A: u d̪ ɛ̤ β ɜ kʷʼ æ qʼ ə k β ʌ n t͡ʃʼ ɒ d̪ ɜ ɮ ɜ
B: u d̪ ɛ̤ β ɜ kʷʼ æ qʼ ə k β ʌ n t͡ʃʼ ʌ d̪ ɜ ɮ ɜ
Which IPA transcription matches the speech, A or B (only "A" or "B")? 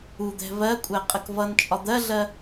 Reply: A